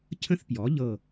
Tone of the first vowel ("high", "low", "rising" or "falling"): high